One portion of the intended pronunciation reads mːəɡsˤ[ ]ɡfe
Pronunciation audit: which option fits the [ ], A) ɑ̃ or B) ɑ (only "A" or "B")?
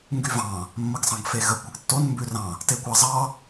A